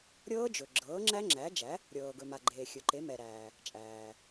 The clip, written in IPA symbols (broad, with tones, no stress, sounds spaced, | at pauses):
ɾʲ ɤː˦˥ d͡ʒ ɵ˩ ɡ͡ǁ ɤː˩˥ ŋ͡ǁ æ˦˥ ŋ͡ǁ æ˩˥ d͡ʒ æ˩˥ | ɾʲ ɤː˩ ɡ ɵ˩ m a˩ ɡ͡ǃ eː˩ xʲ ɵ˩ ǃ e˩˥ m ɛ˩ ɾ æː˩ | t͡ʃʼ æː˩